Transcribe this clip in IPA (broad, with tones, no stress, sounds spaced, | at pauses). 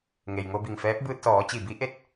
ŋ e˩ j ŋ o˧ b i˧˩ ŋ f ɛː˧˥ p̚ b ɯː˧ t̚ s ɔː˩˧ t͡ɕ i˧˩ b i˧˥ ʔ e˥˨ t̚